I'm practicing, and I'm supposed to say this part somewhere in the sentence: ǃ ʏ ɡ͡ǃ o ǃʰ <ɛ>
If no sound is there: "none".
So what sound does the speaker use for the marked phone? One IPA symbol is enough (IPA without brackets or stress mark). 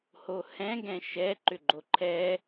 ɛ